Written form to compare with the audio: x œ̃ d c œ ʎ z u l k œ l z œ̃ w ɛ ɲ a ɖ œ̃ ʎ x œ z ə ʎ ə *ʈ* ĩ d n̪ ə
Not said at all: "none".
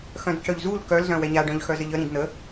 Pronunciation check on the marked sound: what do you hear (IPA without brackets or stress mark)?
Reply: ɾ